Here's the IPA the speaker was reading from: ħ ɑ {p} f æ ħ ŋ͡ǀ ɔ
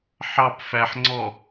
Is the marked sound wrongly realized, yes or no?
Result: no